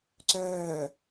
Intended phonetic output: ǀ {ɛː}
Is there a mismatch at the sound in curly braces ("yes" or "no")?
yes